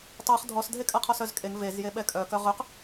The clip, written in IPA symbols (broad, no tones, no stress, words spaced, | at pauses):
tˤœχ dʱɔsdʱekʼa qʰɔsœzkʼeŋ vezjeɓɛ kʼœkœ ʁøq